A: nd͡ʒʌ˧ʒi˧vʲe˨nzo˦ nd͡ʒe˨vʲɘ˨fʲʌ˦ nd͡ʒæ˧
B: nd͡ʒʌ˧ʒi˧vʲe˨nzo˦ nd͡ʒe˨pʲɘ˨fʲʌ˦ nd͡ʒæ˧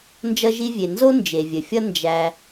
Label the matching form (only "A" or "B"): A